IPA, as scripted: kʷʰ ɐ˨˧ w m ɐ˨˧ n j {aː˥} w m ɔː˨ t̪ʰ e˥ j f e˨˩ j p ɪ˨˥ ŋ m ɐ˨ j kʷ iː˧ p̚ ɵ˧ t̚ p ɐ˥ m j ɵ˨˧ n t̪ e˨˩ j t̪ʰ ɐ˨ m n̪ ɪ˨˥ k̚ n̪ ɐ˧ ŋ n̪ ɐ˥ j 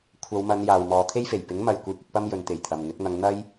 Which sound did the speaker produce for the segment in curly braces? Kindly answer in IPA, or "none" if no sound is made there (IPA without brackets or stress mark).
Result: aː˨